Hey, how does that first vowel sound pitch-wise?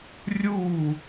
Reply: falling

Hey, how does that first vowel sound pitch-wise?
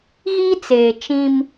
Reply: high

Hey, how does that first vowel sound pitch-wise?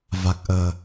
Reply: low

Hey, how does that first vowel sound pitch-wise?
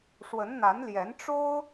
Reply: rising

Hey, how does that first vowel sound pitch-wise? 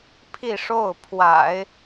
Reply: falling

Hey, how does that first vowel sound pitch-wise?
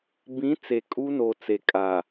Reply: rising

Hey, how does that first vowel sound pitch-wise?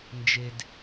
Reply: low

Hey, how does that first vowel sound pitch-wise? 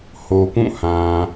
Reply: low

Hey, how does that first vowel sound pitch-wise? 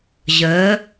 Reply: rising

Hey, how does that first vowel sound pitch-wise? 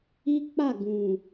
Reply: high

